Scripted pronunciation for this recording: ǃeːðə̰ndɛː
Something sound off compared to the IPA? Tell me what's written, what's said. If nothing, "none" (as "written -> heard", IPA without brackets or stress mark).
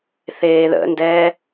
ǃ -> θ